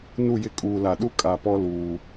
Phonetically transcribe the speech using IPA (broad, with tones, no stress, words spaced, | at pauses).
nu˦˨jɪ˦ kʼuː˨la˨ɗu˦ kʼa˨pɔ˦ luː˨